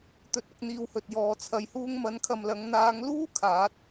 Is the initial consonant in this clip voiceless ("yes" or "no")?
yes